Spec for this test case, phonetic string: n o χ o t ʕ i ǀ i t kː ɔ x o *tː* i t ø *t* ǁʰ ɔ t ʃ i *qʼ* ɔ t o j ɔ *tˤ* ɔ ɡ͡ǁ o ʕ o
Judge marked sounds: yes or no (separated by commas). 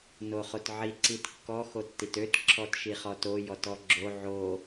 yes, yes, no, no